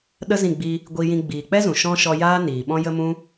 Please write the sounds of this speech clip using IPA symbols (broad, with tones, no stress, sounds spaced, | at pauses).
ɗ ə˦ z ĩ˦˨ ɡ͡b i˧ | ɡʷ i˧ j ĩ˧ ɡ͡b iː˨ k͡p ɛ˦ z ũ˨ ʃ ɔ̃˧ ʃ ɔ˧ j aː˦ n iː˨ ɓ ɔ̃˧ j ə˧ m ũ˦